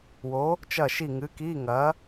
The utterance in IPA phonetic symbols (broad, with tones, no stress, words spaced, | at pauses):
wo˨˥ | t͡ʃɐ˦˨ ʃi˦˨ŋɨ˨˥ ki˧˥˧ ŋɐ˨˥